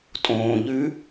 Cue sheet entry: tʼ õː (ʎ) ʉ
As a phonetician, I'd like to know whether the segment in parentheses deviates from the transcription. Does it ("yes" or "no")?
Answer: no